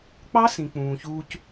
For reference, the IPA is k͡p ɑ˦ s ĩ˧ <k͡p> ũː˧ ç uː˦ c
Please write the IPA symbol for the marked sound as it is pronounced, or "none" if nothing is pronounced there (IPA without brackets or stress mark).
k͡p